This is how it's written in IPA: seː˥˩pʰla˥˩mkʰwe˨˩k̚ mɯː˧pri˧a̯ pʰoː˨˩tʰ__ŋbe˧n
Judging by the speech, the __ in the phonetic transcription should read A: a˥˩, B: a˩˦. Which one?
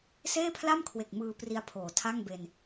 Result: A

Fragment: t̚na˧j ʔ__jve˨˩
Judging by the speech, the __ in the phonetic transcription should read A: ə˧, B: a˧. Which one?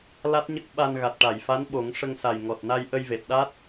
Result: A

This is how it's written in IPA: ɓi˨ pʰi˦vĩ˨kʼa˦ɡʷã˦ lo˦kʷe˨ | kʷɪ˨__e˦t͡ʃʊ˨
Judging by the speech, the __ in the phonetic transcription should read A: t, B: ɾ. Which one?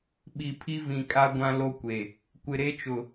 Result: B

